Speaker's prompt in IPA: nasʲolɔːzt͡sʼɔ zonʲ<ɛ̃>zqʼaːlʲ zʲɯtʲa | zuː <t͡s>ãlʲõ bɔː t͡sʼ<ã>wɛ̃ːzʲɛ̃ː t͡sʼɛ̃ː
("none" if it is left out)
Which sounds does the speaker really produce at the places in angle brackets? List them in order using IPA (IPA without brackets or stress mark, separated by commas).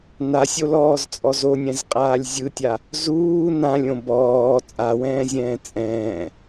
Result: ɛ̃, n, a